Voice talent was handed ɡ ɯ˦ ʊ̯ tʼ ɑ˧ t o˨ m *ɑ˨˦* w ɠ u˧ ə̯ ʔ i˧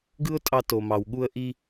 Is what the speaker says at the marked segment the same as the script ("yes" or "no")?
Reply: no